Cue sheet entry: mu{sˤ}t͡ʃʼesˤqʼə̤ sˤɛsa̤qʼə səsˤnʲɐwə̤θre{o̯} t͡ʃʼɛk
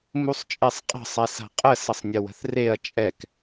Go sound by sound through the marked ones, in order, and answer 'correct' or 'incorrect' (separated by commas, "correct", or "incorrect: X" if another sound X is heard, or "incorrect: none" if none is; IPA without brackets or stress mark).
correct, incorrect: ɐ̯